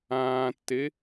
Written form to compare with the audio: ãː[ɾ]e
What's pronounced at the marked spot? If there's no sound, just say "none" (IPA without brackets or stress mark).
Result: tː